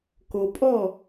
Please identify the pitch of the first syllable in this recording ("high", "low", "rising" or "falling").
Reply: low